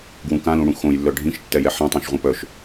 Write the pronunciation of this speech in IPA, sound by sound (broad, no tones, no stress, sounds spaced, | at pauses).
ɡ w ũ k ã l ũ ɽ ũ x õ j lː œ ɖʱ ĩ ʃ tː ɛ j ɛ ħ ɛ̃ tˤ ɛ̃ ʃ ʁʷ ã p œ ʃ